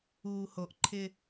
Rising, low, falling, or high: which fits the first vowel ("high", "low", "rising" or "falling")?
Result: low